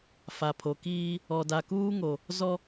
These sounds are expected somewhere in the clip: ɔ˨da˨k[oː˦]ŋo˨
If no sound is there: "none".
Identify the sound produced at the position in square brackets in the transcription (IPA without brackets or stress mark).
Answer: uː˦